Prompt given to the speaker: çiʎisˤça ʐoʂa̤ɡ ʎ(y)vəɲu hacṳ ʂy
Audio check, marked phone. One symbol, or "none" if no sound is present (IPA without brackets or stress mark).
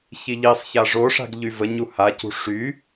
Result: y